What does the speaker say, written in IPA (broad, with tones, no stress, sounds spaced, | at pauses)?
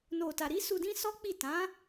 n o˨ t a˨ ɾ i˨˦ s u˧ d ĩ˦ s ɔ˦ k͡p i˦˨ t ã˨˦